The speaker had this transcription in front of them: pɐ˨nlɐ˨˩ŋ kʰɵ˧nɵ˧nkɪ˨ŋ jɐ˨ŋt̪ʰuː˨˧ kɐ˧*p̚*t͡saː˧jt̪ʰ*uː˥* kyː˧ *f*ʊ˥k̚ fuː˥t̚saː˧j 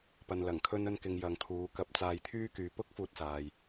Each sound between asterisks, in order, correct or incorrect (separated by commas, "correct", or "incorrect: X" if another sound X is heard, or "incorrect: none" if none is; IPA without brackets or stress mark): correct, incorrect: yː˥, incorrect: p